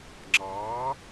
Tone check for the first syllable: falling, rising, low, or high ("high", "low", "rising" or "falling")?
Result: rising